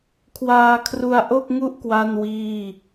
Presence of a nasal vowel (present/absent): absent